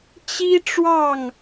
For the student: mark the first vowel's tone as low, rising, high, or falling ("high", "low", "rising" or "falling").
high